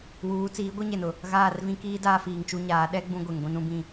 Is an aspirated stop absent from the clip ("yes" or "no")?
yes